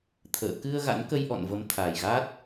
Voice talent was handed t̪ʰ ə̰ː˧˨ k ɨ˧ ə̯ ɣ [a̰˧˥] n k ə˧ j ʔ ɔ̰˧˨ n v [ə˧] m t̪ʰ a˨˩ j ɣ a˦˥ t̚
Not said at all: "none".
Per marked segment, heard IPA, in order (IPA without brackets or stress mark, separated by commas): a̰˧˥, ə˨˦